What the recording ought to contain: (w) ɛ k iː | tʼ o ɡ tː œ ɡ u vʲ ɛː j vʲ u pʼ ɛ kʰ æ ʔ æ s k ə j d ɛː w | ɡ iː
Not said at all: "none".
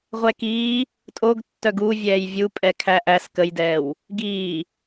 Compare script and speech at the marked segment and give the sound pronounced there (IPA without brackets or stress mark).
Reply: ʁʷ